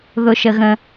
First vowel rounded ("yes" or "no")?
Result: yes